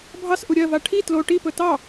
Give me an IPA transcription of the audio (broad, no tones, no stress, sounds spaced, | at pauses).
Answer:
bʱ ɑ s ʔ u ɾʲ ɜ v a ʈʰ i t l o ʈ i p ɵ t ɑ